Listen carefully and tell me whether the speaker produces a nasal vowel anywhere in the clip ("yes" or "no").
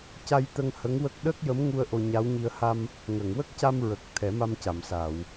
no